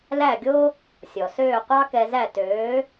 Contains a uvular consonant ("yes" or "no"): yes